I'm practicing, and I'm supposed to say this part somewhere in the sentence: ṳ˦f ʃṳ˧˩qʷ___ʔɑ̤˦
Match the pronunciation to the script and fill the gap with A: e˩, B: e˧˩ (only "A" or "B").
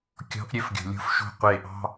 B